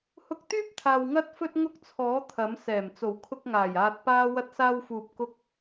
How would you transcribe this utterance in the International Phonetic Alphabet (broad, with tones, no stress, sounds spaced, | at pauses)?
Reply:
h ʊ˧ k̚ t̪ yː˥ p̚ t̪ʰ aː˨ w ŋ ɐ˥ t̚ f ɵ˥ t̚ ŋ ʊ˥ k̚ t͡sʰ ɔː˨˥ t̪ʰ ɐ˨˥ m s ɛː˨˩ m t͡s o˨˩ w kʰ ʊ˧ k̚ ŋ aː˨˩ j aː˧ t̚ p aː˥ w ɐ˥ t̚ s aː˥ w f uː˧ p̚ k ʊ˥ k̚